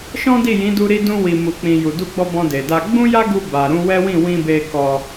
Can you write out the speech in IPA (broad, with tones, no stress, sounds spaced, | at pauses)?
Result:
ʃ ɔ̃˦ d i˦˨ j ĩ˨˦ d u˧ ɾ i˧ d ũ˧ w i˨ m u˨ k͡p ĩ˨ j u˨ d u˧ ɡ͡b ɔ˧ b ɔ̃˧ d e˨ d a˧ ɡ͡b ũ˦ j a˦ ɡ u˧ b a˨ ɾ ũ˧ w ɛ˦ w ĩ˦˨ w ĩ˧ b e˧ k ɔ˧